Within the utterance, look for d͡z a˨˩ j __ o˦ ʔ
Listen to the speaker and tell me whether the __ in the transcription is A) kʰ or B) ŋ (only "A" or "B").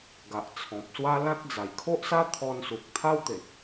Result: A